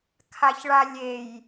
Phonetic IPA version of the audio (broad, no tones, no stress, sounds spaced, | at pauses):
kʰ a ç ɭ a lʲ e j